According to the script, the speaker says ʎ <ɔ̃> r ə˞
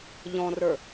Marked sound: correct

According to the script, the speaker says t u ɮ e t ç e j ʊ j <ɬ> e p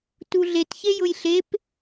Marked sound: correct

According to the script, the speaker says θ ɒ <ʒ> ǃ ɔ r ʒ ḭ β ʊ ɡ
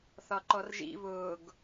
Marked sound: incorrect: none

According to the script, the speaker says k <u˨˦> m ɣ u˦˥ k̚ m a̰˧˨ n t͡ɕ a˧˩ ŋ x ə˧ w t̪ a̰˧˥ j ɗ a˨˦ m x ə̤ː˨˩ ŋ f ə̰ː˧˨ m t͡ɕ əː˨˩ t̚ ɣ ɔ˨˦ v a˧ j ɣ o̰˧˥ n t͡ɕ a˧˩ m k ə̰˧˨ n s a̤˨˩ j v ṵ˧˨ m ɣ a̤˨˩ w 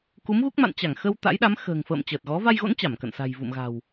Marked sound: correct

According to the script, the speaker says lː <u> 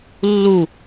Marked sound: correct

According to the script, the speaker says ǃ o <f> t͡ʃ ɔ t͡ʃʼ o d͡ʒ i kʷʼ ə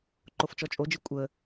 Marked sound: correct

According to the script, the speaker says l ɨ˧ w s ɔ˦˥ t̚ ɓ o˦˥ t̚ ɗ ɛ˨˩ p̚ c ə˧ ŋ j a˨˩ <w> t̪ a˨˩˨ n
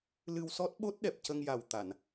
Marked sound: correct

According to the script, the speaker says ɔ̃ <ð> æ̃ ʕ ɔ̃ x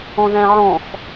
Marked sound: correct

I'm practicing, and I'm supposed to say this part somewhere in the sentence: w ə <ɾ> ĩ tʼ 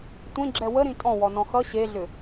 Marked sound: correct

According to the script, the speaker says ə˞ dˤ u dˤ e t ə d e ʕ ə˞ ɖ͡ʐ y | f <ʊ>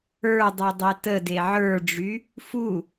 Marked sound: incorrect: u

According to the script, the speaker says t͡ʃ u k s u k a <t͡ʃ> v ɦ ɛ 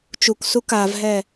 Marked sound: incorrect: none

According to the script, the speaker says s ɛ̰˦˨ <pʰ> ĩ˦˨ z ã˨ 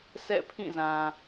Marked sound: correct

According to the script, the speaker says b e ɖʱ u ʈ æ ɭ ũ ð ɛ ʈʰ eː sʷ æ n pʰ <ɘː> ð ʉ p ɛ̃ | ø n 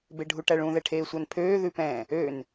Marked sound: incorrect: øː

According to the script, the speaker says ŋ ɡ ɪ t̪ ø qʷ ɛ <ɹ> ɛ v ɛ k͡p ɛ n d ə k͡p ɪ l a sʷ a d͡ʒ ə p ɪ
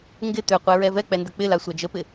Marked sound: correct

